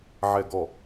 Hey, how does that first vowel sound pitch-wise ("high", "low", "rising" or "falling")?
low